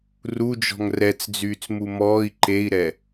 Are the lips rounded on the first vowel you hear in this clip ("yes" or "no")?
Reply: yes